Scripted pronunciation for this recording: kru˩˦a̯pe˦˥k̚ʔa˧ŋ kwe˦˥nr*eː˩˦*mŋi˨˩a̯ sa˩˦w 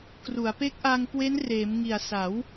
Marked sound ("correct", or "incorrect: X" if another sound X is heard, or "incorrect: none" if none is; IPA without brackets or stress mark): correct